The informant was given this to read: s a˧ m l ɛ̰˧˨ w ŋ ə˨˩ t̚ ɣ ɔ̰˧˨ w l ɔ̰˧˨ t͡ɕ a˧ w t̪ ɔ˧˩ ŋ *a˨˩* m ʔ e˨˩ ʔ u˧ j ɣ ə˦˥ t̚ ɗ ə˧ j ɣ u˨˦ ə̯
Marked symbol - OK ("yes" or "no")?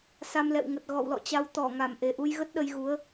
no